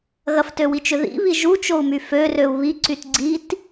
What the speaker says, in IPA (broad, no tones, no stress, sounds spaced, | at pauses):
ɣ ɐ f t ø w i t͡ʃ ʏ ð ḭ β i ʒ u t͡ʃ o u̯ m y f ø r ø u̯ β i ǀ y t ɡ͡ǀ i t